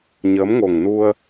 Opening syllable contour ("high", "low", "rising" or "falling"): rising